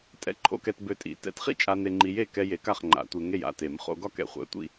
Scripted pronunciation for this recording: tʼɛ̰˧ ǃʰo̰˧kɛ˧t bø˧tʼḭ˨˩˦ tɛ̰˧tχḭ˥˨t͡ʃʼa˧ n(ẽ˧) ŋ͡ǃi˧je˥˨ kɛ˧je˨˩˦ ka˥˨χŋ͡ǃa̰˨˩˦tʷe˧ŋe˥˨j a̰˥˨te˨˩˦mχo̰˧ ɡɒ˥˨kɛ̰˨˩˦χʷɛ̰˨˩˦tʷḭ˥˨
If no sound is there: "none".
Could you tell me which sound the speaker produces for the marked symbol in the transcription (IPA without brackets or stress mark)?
e˧